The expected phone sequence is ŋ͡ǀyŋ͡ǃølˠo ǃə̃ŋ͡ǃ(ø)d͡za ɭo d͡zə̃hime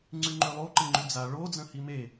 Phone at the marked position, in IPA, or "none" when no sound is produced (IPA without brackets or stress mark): ʉ